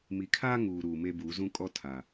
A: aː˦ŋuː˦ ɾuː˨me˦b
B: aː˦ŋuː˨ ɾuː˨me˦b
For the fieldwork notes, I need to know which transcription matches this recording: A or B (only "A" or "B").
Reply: B